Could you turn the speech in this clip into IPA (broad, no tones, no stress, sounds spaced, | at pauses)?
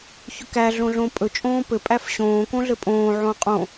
ç ɵ k æ ɮ õ ɮ õ pʼ ɵ t͡ʃʼ õː p ɘ pʼ æ f ɕ õː k õ ɮ ɘ pʼ õː ʕ õː qʼ õ